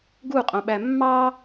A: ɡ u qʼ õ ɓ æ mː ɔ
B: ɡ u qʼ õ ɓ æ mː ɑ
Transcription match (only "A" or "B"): B